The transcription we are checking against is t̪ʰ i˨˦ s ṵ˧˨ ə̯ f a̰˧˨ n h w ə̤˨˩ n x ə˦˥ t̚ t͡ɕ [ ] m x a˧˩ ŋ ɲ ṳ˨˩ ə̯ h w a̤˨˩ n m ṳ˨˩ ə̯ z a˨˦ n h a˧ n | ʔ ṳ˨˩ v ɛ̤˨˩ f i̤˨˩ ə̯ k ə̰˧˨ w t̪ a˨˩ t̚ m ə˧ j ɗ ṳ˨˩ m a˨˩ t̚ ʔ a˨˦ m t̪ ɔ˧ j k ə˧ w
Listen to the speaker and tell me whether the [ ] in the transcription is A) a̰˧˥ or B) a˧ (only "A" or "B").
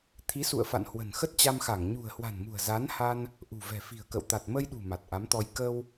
B